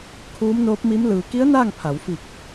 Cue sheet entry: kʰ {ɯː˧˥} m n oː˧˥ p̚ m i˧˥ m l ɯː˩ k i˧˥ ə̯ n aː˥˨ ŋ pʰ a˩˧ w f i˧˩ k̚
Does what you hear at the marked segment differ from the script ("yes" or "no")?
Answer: yes